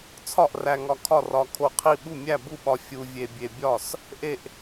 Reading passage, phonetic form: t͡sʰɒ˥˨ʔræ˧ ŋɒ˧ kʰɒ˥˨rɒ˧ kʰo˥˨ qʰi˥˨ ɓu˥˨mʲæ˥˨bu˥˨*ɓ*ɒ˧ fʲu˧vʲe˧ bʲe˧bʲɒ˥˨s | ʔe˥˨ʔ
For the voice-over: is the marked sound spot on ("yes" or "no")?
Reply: yes